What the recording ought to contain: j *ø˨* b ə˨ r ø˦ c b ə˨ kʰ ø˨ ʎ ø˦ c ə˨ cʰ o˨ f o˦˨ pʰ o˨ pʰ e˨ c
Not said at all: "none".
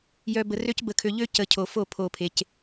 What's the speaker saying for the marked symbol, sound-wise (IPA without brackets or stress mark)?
œ˨